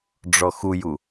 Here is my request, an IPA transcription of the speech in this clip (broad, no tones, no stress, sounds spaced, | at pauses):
ɖ͡ʐ ɔ x u j u